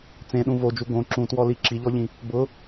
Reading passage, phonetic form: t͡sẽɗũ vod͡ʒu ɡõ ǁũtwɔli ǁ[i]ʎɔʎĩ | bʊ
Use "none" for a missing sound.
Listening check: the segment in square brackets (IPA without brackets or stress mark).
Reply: i